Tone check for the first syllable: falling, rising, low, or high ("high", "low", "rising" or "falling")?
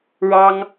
high